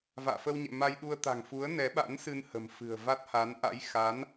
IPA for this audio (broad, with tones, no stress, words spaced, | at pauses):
va̰ː˧˨fə˧wɲɛ̰˧˨ ma˧jɗu˧ə̯t̪a̤˨˩ŋfu˨˦ə̯ nɛ˨˦ɓa̰˧˥nsɨ˧nhə̤˨˩m fɨ̤˨˩ə̯va˦˥t̚ha˨˦n ʔa̰˧˥jxa˨˦n